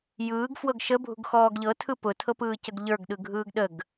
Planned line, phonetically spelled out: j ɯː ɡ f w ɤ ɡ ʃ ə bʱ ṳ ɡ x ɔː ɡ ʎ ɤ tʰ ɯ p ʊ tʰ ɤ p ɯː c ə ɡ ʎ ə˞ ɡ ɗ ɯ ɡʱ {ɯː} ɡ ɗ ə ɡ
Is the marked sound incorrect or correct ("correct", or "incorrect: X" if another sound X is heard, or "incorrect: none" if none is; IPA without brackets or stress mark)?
correct